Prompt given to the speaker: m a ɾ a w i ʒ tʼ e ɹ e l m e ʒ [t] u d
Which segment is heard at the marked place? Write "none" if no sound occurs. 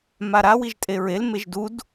d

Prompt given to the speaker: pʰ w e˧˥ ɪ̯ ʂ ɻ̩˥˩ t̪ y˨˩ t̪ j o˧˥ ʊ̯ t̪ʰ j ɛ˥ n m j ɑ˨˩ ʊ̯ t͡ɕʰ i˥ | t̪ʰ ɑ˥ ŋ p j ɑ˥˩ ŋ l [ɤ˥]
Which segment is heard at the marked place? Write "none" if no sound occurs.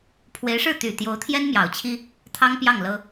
ɤ˥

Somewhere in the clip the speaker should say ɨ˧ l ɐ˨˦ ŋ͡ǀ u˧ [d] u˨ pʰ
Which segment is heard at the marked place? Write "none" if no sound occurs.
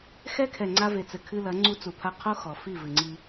t͡s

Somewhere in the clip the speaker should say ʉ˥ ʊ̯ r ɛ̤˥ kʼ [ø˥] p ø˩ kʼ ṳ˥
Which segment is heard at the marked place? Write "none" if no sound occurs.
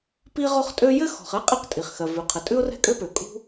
ø˥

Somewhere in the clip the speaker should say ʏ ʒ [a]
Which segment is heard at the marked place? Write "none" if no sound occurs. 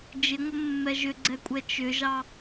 ɑ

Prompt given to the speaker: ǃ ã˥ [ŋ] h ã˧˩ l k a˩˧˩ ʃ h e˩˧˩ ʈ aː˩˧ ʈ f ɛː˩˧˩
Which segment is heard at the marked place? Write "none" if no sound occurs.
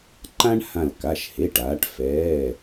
ɳ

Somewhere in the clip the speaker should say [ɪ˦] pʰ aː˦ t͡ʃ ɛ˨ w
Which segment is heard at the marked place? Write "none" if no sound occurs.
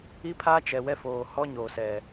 i˦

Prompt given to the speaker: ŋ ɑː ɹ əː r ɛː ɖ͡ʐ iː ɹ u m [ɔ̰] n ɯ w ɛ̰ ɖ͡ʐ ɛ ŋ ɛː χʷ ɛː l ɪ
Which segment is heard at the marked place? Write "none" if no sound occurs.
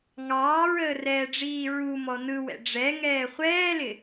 ɔ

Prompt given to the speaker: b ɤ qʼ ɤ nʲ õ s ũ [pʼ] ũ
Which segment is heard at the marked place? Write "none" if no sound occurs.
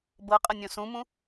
m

